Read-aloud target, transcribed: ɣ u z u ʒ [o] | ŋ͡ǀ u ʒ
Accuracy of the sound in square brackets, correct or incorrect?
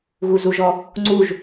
incorrect